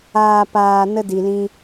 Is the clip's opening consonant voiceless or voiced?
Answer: voiceless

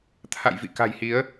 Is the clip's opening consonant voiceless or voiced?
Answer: voiceless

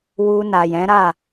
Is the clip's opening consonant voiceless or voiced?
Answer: voiced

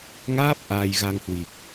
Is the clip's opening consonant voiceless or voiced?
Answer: voiced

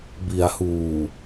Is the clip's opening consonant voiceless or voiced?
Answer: voiced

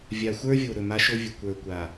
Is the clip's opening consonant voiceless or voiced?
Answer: voiced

